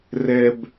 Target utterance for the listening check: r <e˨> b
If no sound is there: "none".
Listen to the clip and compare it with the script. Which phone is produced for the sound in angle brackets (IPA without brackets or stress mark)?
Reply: ɛ˨